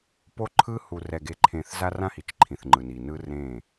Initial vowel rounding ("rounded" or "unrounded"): rounded